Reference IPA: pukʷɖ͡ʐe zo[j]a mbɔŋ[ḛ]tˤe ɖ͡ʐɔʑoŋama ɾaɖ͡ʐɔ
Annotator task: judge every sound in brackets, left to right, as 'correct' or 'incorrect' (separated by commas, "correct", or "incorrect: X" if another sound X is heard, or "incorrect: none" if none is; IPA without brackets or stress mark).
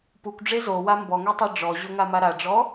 incorrect: w, incorrect: e